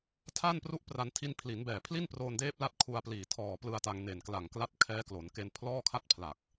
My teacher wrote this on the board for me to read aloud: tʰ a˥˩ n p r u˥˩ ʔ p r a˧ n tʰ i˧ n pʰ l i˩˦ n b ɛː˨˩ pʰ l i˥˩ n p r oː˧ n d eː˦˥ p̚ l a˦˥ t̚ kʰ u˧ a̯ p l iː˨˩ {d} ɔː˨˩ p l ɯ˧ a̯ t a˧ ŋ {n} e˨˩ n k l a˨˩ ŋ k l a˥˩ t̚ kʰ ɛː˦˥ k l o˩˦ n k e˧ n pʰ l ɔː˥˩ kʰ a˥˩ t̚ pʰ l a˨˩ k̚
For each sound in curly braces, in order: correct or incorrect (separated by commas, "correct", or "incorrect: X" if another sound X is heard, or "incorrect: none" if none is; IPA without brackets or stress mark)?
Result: incorrect: tʰ, correct